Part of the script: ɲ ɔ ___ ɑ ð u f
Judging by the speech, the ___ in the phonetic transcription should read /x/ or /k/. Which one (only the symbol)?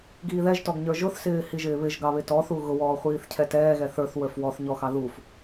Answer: x